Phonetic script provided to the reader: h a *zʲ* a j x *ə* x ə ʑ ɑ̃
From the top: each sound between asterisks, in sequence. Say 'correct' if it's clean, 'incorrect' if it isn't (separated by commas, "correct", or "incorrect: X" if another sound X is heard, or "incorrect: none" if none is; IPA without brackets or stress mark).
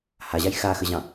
incorrect: ʑ, incorrect: a